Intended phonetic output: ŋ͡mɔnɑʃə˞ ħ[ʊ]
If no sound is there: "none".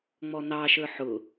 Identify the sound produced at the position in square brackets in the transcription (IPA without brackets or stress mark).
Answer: ʊ